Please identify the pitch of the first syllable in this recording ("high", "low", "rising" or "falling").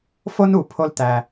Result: high